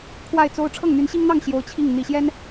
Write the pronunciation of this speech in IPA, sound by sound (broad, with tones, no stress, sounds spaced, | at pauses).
kʰ w a˥˩ ɪ̯ t͡s o˥ ʊ̯ ʈ͡ʂʰ ɤ˥˩ ŋ n̪ y˧˥ n ɕ i˥ ŋ n̪ ɑ˥˩ ŋ ɕ j o˧˥ ʊ̯ t͡ɕʰ i˥˩ ŋ n̪ i˨˩ ɕ j ɛ˥ n